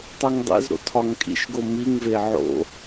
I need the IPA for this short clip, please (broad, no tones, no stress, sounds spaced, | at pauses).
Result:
tˤ o ŋ dˤ ḛ z ɾ o̰ tʰ ɒ ŋ kʼ ḭ ʃ ɡ o m i ŋ v e ʕ o̰